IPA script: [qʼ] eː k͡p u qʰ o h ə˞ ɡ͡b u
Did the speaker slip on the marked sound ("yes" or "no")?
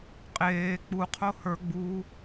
no